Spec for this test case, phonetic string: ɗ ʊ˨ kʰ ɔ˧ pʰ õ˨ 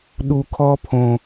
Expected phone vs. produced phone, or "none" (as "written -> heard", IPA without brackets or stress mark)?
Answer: ʊ˨ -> u˨